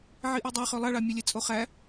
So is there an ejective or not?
yes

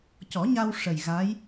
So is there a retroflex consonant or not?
yes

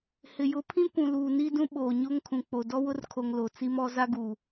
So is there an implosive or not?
yes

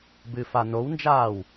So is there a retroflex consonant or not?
no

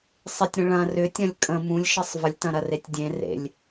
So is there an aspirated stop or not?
no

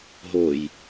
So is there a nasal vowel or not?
no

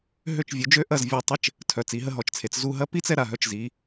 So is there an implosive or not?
no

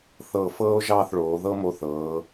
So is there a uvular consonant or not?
no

